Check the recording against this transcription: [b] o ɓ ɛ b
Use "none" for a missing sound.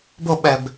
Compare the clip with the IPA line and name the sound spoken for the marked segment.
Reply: b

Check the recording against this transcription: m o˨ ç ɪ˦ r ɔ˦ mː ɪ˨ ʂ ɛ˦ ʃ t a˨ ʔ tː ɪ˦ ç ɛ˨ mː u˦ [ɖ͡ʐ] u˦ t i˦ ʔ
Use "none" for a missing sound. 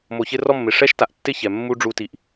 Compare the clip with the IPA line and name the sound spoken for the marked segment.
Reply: ɖ͡ʐ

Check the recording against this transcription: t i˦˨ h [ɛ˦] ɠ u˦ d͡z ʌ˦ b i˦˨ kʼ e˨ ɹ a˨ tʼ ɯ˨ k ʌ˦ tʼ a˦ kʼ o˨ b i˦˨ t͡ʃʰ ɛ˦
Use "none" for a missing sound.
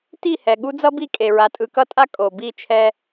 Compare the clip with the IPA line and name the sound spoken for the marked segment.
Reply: ɛ˨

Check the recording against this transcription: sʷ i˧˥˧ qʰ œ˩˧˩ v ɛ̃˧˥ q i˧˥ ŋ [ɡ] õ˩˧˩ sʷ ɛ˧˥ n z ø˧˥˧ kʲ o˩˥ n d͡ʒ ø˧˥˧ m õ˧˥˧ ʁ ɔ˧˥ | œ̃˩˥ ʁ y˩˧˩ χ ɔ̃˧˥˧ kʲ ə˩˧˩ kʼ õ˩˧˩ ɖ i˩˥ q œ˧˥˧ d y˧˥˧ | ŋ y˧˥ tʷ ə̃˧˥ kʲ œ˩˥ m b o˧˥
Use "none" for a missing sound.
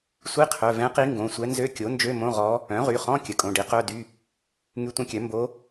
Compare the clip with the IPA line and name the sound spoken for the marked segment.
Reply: ɡ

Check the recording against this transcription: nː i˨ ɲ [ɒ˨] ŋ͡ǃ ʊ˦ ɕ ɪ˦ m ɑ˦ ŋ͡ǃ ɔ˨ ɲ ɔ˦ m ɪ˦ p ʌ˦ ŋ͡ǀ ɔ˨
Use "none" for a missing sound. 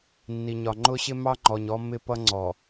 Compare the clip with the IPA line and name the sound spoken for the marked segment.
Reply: ɒ˨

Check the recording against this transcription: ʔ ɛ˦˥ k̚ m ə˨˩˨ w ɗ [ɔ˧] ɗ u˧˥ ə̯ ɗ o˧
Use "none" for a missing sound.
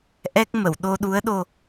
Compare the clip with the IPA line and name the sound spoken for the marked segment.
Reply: o˧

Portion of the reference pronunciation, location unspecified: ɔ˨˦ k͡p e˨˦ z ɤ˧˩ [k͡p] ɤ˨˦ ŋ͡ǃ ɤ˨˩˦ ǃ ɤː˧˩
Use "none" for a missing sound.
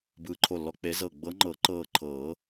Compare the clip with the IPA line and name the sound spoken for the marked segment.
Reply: ɡ͡b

